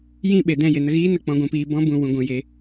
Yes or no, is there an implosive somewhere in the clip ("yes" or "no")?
yes